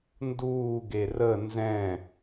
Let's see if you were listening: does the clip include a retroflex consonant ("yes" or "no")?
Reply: no